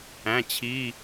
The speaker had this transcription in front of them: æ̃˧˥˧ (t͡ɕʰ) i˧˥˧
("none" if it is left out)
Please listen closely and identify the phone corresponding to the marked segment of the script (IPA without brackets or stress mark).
t͡ɕʰ